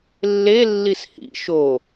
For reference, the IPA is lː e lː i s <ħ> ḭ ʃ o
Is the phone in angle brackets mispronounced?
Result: yes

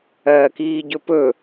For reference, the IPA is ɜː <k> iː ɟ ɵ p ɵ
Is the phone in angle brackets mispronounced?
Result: no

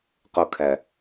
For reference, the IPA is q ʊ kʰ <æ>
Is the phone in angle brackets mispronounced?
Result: no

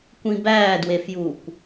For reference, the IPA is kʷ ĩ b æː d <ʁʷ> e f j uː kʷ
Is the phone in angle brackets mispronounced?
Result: yes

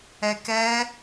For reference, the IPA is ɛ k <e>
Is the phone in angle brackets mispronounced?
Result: yes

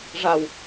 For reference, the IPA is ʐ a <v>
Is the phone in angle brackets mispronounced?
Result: yes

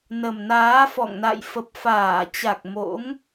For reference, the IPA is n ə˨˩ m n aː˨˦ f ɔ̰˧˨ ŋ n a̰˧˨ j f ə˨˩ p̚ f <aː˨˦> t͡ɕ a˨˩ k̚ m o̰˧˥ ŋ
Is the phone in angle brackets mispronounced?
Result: yes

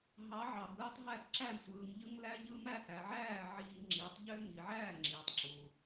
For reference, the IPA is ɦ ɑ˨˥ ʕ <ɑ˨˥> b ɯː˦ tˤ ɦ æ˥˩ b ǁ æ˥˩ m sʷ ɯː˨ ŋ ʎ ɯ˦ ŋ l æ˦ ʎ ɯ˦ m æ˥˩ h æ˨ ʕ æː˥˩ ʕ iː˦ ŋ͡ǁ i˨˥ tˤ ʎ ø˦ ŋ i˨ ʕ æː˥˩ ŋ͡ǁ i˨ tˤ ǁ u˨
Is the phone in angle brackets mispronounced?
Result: yes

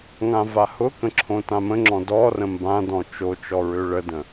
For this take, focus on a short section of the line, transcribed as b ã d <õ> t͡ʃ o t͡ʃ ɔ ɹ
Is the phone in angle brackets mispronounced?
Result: yes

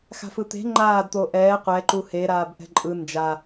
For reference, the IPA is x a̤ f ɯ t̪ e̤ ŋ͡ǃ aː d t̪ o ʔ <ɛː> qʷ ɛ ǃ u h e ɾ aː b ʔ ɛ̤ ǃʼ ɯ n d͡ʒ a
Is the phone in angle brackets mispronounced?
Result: no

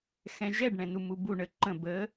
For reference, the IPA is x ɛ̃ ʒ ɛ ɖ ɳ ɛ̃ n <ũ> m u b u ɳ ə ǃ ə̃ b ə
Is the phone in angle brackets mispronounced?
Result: yes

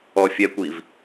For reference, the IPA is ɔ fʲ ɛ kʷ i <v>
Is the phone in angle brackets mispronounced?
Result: no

